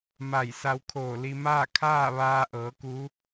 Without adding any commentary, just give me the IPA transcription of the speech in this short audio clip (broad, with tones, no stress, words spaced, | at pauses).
ma˧˩j sa˧wkʰoː˧˩ li˧ maː˥˨kʰaː˥˨ ʋaː˧ʔɤː˩˧ ku˧˥